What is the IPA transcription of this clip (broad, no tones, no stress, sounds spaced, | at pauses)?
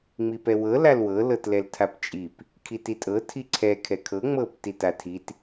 ŋ͡m i p ɛ w ɤ l a l w ɤ l ɤ t l ɛ l tʰ a p t͡ʃʼ i p | kʰ i t i tʼ ɤ tʰ i ǀʰ ɛ kʰ ɛ kʰ ɤ ŋ͡m ɤ p t i t a tʰ i t